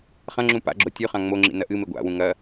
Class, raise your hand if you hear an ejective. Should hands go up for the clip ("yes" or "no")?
no